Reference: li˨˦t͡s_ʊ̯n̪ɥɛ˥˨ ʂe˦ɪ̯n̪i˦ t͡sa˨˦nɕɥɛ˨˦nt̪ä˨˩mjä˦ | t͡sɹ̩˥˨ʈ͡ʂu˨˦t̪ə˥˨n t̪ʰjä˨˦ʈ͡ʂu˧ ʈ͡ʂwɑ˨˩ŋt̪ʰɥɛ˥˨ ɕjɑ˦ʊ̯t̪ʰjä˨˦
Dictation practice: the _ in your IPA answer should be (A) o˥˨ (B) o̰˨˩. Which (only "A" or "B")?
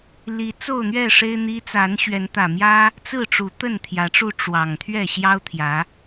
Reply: A